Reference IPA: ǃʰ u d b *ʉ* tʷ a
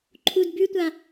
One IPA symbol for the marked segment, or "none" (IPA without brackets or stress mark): ʉ